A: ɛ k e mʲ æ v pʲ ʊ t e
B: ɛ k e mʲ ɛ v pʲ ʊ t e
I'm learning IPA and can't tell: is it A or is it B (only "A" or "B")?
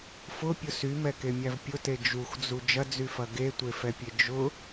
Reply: A